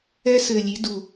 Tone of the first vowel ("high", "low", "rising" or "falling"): high